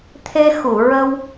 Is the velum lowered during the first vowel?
no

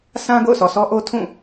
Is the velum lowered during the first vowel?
yes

